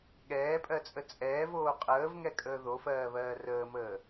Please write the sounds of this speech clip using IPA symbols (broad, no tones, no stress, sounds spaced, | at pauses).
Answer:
ɠ ɛː pʼ ɜ t͡sʼ ə t͡sʼ ɛː v oː qʼ əː v ŋ ɛ kʼ əː ð o f ɜː β ɜː r əː m əː